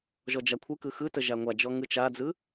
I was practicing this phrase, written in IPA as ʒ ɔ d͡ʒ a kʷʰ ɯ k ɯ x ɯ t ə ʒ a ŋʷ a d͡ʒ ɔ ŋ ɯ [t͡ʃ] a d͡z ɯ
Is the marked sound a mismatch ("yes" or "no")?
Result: no